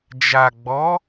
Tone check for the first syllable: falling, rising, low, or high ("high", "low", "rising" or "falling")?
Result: low